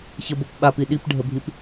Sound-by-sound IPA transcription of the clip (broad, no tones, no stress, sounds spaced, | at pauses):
ç ə b o p ɓ a p i ɗ i p ɖʱ ə bʱ i p